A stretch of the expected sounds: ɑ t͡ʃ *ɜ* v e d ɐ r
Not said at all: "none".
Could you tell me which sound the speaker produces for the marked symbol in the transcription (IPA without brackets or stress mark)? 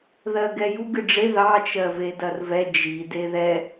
ɜ